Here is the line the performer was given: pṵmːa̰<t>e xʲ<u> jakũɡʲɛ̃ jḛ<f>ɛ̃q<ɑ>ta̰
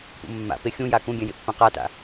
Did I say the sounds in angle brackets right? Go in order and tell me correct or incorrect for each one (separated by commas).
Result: incorrect, incorrect, incorrect, incorrect